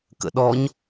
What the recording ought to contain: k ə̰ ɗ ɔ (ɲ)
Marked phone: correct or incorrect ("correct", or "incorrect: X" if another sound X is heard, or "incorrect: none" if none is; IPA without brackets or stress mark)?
correct